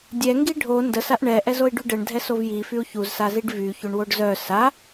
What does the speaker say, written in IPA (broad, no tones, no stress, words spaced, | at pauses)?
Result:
dʲɛŋɡi ɖʱo ndəsaʔ ɳɛʔɛz oi̯ɖyɖɛɳdʱɛ sovji fyu̯çuzsaziɖ vy çoɳwoɖzœ sa